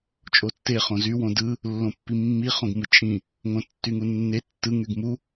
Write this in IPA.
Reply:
t͡ʃʼ o tː e χ õ z y w õ d ɯ | lː õ pː i mː i χ õ ɡ m ɯ t͡ʃʼ ĩ | ŋ õ tː y ŋ u nː e tː ɯ ŋ y ɡ m u

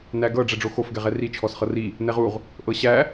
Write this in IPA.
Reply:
n æ ɡ ɤ ɖ͡ʐ ɛ ɖ͡ʐ o x o f ɡ ɛ ʁ ɛ r i t͡ʃʰ ɔ s χ ɤ r i | n ɛ ʁ u ʁ | ʔ ɤ ɕ æ

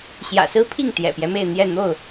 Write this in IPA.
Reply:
ɕ j ä̰˨˩ s ɹ̩˦ pʰ i˥˨ ŋ t̪ j ɛ̰˨˩ p j ɛ˦ m e˥˨ ɪ̯ n̪ j ɛ˥˨ n̪ o˥˨ ʊ̯

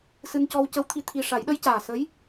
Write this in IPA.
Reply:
s ɨ˧ n c ɔ˧ w c ə˧˥ w t̪ʰ i˧˥ t̪ʰ i˧ ʂ a˨˩˦ j ɗ ə˧˥ j c aː˨˩ s ə˧˥ j

